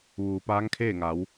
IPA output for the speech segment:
ʋ uː˩ p aː˧˥ ŋ kʰ eː˥˨ ŋ a˩˧ w

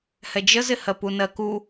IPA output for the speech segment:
h ɛ d͡ʒ ə z ɪ h ɜ p u n ɜ k u

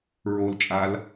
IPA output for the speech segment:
ɹ o l t͡ʃʼ a l

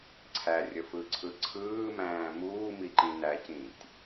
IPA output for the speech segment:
ǀʰ æ rʲ ə f ɯ ǀʰ ɯ ǀʰ ɯː m æ̃ː m uː m i ǃ ĩ n æ c ĩ tʲ

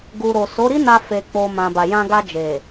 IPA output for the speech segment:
ɡ u˨ ɾ o˨ s o˨˦ ɾ i˦ n a˧ f e˧ k͡p o˧ m ã˨ b a˨ j ã˧ ɡ a˧ d͡ʒ e˨

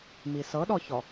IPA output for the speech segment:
m i s ɤ ɗ ɔ ç ɔ

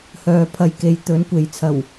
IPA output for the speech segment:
h œː˨ pʰ ɐ˧ j k e˨˥ j t̪ ɵ˨˥ n kʷ e˨ j t͡sʰ ɐ˨˩ w

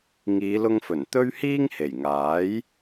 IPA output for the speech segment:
ŋ iː˨˧ l ʊ˧ ŋ f ɵ˨˩ n t̪ ɵ˥ ɥ h iː˥ ŋ h e˨˩ j ŋ aː˨˥ j

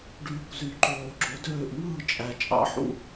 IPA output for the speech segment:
ɖ yː˨ kʷ z y˨ ǃ oː˨ ɡ͡ǁ o˨˦ d øː˦˨ ʔ ŋ ɯː˦˨ t͡ʃʼ æ˨ t͡ʃʼ ɑ̰˨˦ ħ ṵ˦˨

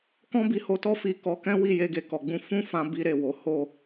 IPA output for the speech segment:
k ɔ̃˦ b i˧ h o˧ t ɔ˦ f i˦˨ k ɔ˧ k ɛ̃˦ w i˦˨ j e˧ ɡ e˨ k ɔ˨ ɡ͡b ũ˧ f ũ˦ f ã˧ b i˧ ɾ e˨ w o˨˦ h o˦˨

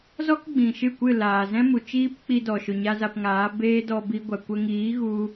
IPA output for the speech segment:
z ɔ˦ k ɡ͡b ĩ˨ ʃ ɨ˦˨ kʷ ɨ˦˨ l aː˨ z ɛ̃˦ m u˨ t͡ʃ iː˦ p k͡p i˧ d ɔ˨ ʃ o˨ ɲ a˧ z a˧ p ŋ aː˨˦ b eː˦ d ɔ˧ b i˧ ɡʷ a˨ kʷ ə˧ ŋ iː˨˦ ɣ u˧

